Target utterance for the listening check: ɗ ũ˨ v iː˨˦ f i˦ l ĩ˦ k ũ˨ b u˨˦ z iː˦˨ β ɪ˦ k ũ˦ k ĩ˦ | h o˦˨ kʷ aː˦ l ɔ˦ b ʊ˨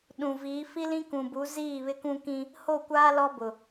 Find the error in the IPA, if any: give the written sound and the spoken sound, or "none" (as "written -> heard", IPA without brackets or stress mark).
none